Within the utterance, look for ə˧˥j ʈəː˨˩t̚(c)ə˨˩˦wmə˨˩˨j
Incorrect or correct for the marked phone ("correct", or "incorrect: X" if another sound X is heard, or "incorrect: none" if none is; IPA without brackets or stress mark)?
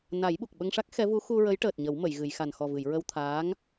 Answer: incorrect: ɲ